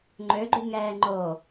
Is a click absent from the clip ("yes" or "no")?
no